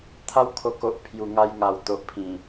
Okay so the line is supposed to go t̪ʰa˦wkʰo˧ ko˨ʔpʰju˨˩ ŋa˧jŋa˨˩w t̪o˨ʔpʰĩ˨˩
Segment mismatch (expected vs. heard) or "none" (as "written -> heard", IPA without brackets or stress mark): none